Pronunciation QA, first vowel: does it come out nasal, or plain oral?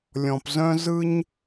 nasal